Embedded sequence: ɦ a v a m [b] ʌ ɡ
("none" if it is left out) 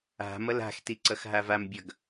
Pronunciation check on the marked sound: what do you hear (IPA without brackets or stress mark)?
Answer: bʲ